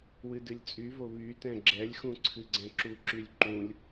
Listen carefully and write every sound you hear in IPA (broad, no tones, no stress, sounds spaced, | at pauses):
w ɨ d ɨ lʲ t͡sʼ y v o β y t ɛ̃ ɡ͡ǁ ɛ lʲ x ũ ǀʰ ɨ ɡ͡ǀ ɛ̃ ǁ u ǁ y lʲ ǃ ũ lʲ